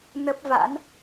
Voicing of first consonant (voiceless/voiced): voiced